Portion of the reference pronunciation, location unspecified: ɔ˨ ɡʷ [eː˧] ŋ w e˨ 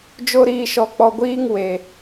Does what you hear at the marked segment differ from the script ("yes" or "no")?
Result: yes